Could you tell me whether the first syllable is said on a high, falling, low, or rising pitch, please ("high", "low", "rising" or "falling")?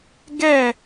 falling